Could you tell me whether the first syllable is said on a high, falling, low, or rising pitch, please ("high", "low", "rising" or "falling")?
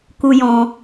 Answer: high